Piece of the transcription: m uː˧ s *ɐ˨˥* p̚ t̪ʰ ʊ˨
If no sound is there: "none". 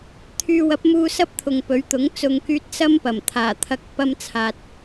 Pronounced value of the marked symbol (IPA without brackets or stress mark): ɐ˥